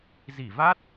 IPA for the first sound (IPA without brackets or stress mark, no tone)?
z